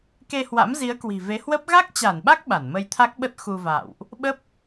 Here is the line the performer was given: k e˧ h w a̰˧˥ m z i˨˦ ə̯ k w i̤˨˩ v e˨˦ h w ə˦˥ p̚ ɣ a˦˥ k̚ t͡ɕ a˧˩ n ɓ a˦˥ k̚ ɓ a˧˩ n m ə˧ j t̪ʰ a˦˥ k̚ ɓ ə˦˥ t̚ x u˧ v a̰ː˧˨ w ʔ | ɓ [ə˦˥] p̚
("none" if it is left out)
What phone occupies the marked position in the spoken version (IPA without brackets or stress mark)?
ə˦˥